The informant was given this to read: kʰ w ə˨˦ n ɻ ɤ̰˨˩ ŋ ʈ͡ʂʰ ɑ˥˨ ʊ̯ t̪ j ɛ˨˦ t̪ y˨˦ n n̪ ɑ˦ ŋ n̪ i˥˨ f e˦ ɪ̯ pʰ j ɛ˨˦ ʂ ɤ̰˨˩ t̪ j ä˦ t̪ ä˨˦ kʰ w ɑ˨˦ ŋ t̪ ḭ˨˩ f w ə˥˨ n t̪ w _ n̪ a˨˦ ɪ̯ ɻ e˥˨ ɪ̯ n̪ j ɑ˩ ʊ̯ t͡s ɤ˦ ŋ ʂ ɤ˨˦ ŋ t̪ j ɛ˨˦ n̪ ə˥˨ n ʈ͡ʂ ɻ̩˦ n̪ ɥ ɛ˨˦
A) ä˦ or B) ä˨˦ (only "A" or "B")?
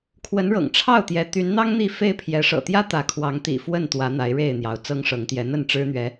B